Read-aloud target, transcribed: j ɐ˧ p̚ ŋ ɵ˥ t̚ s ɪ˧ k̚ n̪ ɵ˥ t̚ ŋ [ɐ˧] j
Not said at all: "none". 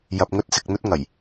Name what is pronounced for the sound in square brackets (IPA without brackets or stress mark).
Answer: ɐ˨˩